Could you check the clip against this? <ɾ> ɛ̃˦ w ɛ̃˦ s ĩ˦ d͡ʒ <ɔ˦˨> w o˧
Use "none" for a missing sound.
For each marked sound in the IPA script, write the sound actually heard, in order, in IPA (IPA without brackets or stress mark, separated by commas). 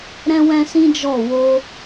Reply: ɾ, ɔ˦˨